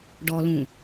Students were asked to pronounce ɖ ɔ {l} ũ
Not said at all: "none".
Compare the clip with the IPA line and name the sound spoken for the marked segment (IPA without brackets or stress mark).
l